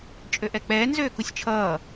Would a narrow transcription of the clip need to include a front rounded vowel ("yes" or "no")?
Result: yes